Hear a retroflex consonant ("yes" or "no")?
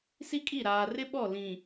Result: no